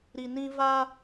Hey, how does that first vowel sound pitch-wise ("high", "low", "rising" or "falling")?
low